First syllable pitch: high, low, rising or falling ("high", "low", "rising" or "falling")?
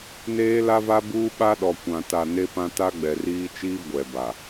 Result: high